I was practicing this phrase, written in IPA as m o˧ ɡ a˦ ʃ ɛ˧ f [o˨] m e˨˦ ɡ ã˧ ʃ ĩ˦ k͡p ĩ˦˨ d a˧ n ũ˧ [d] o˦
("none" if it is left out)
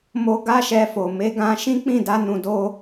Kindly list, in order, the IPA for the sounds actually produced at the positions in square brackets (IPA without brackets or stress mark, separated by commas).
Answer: o˨, d